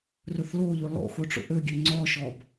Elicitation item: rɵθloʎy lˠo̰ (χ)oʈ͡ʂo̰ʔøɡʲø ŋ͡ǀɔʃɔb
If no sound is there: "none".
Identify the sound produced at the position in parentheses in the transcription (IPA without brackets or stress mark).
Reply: x